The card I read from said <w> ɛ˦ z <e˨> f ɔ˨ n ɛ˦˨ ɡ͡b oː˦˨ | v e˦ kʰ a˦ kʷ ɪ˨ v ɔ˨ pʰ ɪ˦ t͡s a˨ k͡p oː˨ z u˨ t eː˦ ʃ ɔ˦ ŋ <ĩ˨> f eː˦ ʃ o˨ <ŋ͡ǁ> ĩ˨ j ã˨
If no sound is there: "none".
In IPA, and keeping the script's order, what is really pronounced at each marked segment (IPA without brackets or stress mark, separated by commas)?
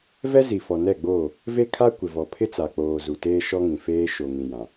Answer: v, i˨, ĩ˨, ŋ